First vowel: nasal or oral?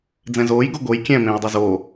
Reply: nasal